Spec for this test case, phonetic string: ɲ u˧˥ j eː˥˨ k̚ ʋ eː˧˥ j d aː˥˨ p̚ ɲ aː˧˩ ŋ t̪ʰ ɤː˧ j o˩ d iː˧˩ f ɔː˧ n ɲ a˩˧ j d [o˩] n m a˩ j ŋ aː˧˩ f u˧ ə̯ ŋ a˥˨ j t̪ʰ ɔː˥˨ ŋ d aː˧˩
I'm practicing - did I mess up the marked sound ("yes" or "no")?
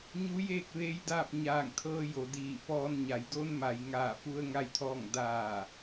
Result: yes